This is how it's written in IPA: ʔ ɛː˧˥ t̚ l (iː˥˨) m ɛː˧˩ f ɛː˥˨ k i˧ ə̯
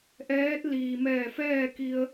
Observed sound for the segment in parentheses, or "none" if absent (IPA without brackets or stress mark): iː˩